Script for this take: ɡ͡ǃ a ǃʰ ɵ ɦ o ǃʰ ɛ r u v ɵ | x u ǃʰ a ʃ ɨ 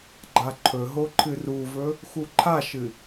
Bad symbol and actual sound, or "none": ɛ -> ɨ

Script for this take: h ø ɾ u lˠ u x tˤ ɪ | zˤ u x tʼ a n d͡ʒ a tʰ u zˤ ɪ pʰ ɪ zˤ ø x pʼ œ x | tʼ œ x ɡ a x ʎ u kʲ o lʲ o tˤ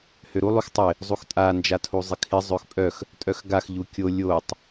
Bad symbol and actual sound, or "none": pʰ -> kʰ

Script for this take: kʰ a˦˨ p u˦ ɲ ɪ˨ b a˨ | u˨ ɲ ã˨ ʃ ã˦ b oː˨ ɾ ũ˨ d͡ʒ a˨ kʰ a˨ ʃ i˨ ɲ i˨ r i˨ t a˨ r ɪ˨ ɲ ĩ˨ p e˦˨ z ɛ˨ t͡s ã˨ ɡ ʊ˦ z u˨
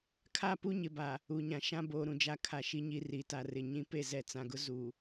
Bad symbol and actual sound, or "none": none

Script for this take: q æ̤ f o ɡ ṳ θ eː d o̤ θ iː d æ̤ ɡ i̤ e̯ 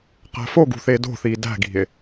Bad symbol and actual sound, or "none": none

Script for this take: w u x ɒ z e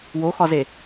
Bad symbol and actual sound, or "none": u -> o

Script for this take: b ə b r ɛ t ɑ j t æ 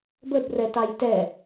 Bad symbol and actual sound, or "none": æ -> ɛ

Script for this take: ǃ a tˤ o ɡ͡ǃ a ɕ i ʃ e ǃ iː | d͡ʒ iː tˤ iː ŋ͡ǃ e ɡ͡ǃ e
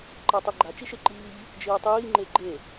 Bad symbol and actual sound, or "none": ɕ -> t͡ʃ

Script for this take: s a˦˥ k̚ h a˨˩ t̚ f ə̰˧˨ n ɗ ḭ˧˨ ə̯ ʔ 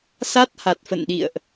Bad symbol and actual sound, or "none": k̚ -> t̚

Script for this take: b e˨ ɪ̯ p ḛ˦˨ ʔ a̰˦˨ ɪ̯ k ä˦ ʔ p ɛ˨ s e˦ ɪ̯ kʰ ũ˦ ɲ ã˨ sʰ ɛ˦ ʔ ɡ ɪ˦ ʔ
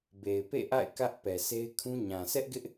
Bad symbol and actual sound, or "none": none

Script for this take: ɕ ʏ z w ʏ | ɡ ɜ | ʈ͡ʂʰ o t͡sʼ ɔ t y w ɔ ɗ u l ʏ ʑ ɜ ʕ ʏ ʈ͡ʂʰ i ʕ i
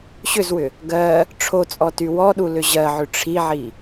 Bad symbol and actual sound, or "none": none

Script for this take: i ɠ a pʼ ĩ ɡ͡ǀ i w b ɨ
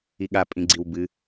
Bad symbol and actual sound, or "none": none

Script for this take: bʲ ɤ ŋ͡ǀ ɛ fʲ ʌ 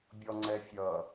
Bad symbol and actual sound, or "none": ɤ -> ɔ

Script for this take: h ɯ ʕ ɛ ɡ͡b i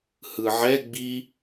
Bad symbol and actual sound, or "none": none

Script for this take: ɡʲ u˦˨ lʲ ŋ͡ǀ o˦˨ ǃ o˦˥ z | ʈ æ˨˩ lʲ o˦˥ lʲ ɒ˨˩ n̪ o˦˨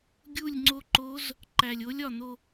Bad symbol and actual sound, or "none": ʈ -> ǃ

